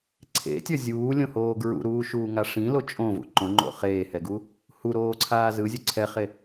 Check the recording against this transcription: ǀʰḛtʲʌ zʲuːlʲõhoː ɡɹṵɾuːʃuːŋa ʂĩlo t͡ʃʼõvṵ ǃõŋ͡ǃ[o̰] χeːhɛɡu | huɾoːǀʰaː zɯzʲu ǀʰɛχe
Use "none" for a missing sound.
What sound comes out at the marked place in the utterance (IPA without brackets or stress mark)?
o̰